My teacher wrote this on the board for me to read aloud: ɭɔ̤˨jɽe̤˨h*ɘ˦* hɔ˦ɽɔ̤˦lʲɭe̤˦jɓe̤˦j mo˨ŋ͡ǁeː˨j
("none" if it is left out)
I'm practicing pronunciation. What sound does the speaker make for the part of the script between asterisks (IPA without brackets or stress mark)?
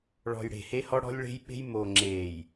e˦